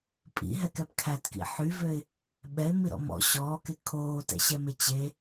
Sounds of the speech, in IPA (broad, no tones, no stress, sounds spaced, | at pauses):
pʼ ḭ ɦ ɛ k ɛ p kʰ æ t k ḭ ħ y v ø ɪ̯ | ɓ ɛ ɪ̯ m i ɾ ɔ̰ m ɔ̰ ɕ ɔː k e kʰ oː t ɛ̰ ɕ ɛ m e t͡ɕ e